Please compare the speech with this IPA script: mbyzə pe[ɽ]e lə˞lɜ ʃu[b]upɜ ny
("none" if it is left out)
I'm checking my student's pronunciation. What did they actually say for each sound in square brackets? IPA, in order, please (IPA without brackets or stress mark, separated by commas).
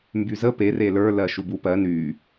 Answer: r, b